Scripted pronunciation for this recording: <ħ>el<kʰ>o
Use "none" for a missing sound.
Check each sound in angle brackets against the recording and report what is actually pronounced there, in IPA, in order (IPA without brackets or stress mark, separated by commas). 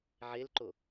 ʕ, ǃ